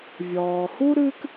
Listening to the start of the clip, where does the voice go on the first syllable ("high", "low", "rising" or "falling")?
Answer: low